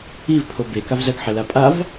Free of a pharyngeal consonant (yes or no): no